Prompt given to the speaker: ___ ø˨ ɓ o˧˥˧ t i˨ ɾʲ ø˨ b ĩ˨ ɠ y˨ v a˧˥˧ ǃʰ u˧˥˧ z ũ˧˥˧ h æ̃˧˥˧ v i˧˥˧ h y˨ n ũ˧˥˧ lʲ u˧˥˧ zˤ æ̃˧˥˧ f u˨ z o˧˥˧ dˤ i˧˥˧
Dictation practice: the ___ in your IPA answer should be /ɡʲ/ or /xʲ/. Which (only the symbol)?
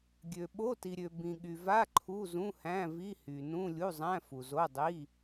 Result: ɡʲ